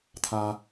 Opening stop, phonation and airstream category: aspirated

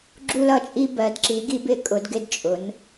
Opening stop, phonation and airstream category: click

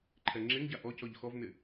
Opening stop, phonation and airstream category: click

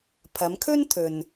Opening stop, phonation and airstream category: aspirated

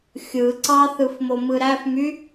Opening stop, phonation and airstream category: click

